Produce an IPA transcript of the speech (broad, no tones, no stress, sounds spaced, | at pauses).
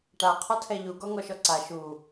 ʈ a qʰ ɒ tʰ ɛ ʎ u ɡ ɔ ŋ ɔ ʃ ɔ ǀ a ʃ u